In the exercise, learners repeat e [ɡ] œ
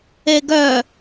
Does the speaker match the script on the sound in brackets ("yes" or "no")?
yes